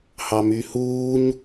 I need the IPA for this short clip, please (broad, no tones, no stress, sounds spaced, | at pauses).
h ɑ m y h uː ɲ